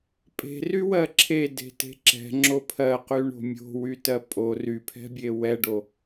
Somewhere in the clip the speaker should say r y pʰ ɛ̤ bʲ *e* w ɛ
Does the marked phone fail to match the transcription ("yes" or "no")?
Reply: no